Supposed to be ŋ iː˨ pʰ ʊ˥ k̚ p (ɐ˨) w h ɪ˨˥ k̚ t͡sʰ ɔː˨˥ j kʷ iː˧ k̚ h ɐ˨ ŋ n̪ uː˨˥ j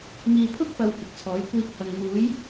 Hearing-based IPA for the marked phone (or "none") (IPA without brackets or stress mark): ɐ˨